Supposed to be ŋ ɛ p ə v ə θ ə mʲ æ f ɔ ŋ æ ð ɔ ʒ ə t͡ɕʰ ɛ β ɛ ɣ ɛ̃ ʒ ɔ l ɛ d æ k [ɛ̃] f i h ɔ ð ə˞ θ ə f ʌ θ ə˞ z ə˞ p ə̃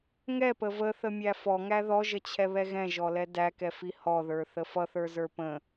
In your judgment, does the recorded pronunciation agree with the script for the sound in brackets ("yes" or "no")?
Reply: no